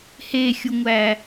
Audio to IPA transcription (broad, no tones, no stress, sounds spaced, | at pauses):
h e xʲ u ŋʷ æ